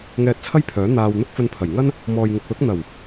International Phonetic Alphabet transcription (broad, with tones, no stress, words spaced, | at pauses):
ŋɛː˧t̚t͡sʰɐ˥jpʰœː˨˥ n̪aː˧w n̪ʊ˥k̚fɵ˧npʰɐ˨˩j ŋɐ˥n | mɔː˨jŋɪ˨k̚ lʊ˨˥k̚ n̪ɐ˨˩w